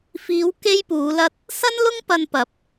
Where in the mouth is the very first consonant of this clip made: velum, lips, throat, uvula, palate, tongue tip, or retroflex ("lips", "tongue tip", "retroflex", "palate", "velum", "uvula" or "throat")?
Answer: lips